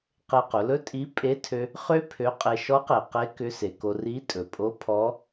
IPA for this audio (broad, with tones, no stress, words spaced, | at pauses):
qe˧qʊ˩˧lɵ˥ tʼi˧˥ pʼe˧˥tʰø˧ | χø˥ pʰø˧˥qʼe˧ ʃɔ˧˥qe˩ qe˧˥ kʏ˧˥se˩ko˧ ri˧˥tʼɵ˩pʼo˧˥ pʰɔ˧˥